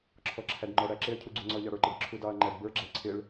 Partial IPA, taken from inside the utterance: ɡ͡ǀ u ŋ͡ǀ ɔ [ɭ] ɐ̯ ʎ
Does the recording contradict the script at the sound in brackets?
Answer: yes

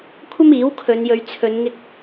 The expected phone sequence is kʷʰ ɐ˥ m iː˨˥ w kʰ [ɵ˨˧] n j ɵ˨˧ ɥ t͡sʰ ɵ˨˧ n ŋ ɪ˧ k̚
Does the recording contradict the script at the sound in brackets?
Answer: no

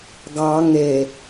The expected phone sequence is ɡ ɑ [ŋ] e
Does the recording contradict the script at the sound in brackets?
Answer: no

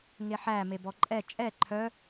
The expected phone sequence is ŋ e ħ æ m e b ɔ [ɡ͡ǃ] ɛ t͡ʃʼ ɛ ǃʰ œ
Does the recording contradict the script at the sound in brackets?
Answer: yes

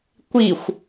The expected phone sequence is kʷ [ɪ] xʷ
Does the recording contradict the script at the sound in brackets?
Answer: yes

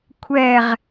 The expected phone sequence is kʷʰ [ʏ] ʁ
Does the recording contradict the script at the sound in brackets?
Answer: yes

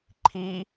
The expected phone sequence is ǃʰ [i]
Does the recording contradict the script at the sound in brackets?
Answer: no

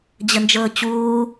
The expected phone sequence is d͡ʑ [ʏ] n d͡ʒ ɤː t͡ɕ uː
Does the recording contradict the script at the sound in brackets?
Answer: yes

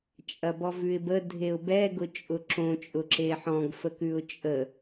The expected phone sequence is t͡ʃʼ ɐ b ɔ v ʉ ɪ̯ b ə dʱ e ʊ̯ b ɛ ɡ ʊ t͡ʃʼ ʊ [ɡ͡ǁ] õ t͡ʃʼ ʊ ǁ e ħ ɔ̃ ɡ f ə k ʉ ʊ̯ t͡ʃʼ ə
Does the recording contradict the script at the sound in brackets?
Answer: yes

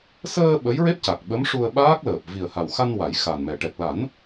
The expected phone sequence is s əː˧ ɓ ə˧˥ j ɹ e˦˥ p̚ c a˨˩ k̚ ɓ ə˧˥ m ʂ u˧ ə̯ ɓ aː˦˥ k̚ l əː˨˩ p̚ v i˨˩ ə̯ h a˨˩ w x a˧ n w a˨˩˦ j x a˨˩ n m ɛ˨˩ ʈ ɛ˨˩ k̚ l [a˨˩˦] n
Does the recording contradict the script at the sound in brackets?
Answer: no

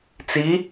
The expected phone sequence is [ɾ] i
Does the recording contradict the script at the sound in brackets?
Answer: yes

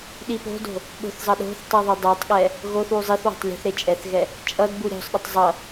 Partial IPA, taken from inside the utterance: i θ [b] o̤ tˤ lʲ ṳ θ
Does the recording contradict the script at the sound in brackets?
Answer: yes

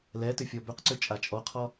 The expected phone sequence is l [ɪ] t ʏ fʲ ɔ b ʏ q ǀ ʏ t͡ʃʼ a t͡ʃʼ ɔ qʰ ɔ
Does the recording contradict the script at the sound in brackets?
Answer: yes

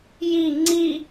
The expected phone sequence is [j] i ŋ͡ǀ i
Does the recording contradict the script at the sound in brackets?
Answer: no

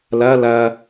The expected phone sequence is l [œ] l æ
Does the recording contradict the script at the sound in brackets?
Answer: yes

